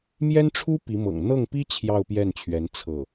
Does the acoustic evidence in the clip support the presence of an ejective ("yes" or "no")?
no